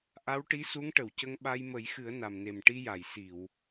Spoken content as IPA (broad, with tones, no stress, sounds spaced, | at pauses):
ʔ a˧˥ w ʈ i˧˥ s u˧˥ ŋ ʈ ə˨˩˨ w c ə˧ ŋ ɓ a˧ j m ə˨˩˦ j x ɨ˨˩˦ ə̯ n a˨˩ m n e˨˩ m ʈ i˧ j a˨˩˨ j s i˨˩˨ w